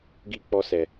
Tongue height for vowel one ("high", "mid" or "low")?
high